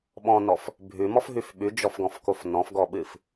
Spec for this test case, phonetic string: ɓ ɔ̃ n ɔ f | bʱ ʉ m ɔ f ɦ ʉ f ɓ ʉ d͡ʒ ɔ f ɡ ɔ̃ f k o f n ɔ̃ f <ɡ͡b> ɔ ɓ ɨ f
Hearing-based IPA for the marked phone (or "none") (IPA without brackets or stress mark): ɡ